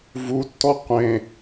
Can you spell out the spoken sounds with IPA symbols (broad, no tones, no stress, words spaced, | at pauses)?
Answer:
vutːɔ qʷẽ